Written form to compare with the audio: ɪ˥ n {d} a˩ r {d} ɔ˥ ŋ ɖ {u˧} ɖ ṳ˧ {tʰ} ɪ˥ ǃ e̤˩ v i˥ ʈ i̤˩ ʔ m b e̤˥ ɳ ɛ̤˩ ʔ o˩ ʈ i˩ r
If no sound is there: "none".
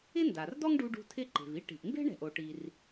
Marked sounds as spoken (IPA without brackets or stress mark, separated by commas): d, d, u˧, tʰ